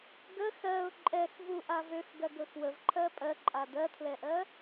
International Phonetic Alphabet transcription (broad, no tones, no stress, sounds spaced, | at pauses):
ɡ ə x ɜ ʊ̯ ǃʼ ɛ x v u ʔ a v ø x ɡ ɜ ɡ ɵ x w ə v ǃʰ ɜ pʼ ɜ ǃʼ a d ɜ tʰ l ɛ ʔ ɜ